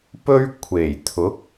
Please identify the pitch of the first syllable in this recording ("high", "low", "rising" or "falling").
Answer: high